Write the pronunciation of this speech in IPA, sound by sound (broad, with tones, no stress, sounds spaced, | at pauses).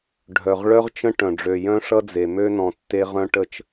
ɖʱ œ˨ ʁ ɭ œ˦ ʁ t͡ʃ ə̃˦ ʈ œ̃˨ ɖ͡ʐ ø˨ j œ̃˦ ʂ ʌ˦ d͡z e˨ m ø˦ n ɔ̃˨ tː e˦ ʁ œ̃˦ ʈ ə˦ t͡ʃ